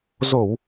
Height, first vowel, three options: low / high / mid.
mid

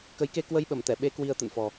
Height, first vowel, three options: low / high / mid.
mid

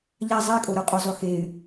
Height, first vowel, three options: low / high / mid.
low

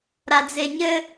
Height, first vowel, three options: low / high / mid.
low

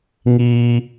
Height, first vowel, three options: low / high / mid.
high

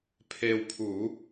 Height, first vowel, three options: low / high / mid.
mid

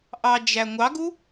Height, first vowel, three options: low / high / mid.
low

